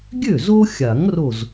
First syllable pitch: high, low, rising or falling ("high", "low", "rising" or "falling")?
falling